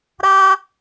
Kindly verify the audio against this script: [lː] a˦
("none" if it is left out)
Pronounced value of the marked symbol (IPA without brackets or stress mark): ɾ